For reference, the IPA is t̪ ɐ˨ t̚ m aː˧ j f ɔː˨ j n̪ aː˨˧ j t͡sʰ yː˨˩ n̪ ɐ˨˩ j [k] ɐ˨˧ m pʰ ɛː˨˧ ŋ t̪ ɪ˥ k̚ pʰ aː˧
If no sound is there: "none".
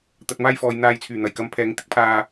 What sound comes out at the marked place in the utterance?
k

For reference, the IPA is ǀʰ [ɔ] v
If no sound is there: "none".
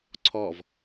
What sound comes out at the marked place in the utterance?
ɔ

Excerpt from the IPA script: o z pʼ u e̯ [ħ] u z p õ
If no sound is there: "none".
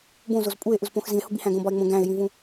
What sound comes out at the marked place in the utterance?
ʔ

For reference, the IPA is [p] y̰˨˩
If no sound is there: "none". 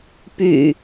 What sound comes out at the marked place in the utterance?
p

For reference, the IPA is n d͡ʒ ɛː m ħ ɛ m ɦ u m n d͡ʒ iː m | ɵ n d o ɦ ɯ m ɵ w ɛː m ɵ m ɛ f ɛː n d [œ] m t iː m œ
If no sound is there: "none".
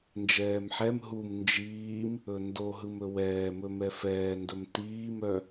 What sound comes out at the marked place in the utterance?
ɵ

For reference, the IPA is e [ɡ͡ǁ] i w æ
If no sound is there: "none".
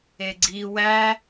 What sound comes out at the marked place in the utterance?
ɡ͡ǀ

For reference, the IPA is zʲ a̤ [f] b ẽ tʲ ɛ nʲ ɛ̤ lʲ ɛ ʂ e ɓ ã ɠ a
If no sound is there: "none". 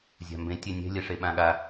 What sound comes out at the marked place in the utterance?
m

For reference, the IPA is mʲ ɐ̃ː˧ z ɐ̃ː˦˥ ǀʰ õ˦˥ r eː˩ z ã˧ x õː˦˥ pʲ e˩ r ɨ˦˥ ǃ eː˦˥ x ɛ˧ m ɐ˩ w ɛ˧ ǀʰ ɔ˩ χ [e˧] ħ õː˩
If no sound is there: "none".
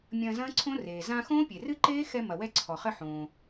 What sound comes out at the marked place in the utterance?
ɘ˧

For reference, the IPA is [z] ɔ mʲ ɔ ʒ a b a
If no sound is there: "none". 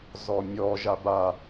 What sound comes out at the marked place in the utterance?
z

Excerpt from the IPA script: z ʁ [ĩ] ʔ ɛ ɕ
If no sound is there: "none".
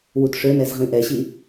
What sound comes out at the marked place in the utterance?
ĩ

